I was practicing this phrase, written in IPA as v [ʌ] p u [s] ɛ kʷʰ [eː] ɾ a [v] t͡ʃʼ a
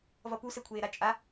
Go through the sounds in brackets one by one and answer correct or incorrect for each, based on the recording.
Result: correct, correct, correct, incorrect

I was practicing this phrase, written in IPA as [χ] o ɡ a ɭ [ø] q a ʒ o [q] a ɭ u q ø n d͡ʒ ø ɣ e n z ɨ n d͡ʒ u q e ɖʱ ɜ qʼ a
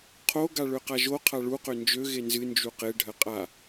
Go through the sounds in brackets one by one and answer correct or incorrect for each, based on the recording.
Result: incorrect, correct, incorrect

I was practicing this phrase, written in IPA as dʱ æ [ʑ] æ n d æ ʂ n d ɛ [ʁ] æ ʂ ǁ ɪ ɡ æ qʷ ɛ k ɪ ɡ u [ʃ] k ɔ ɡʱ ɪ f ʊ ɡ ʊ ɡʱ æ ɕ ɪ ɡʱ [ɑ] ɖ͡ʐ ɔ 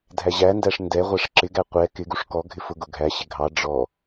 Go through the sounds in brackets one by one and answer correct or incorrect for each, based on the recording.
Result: correct, incorrect, incorrect, correct

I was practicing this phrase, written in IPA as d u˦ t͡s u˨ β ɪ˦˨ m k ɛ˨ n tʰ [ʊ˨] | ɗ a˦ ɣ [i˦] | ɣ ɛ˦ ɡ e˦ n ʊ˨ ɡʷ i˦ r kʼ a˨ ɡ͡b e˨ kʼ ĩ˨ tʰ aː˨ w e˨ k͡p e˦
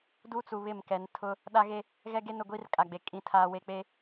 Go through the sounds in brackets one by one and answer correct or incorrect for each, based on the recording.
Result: incorrect, incorrect

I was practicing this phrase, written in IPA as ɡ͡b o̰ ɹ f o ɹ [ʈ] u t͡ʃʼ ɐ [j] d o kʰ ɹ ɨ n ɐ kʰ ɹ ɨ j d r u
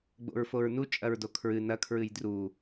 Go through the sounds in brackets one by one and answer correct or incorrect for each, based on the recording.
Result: incorrect, incorrect

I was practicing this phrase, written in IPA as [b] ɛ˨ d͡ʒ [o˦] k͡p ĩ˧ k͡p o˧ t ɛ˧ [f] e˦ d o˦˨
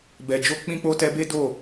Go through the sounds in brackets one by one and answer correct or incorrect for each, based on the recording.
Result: correct, incorrect, incorrect

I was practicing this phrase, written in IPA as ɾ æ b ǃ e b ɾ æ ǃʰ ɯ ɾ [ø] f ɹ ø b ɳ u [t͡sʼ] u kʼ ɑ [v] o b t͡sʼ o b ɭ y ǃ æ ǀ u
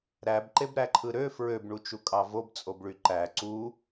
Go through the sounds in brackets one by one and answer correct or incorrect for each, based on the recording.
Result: correct, incorrect, correct

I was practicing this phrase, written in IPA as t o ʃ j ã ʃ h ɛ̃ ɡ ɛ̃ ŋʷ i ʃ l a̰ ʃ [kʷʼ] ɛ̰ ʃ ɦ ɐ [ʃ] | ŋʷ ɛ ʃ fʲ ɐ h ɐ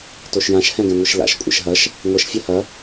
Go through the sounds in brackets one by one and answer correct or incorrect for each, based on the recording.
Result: correct, correct

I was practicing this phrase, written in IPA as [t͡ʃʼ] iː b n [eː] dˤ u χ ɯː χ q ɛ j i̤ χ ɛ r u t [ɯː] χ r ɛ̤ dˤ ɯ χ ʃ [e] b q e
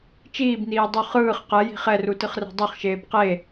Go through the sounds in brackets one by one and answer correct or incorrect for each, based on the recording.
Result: incorrect, incorrect, incorrect, incorrect

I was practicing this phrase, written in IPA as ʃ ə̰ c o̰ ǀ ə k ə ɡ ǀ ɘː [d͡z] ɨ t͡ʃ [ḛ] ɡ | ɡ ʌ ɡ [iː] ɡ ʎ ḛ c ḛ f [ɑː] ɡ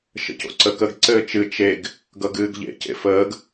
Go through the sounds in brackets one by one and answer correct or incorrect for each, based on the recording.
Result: incorrect, incorrect, incorrect, incorrect

